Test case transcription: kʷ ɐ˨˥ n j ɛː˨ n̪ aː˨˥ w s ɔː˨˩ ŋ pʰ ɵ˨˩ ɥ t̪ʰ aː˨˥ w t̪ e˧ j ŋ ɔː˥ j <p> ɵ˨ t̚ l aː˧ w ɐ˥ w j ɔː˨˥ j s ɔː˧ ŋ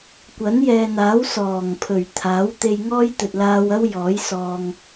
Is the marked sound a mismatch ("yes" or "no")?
yes